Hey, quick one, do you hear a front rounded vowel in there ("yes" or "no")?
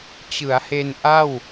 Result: no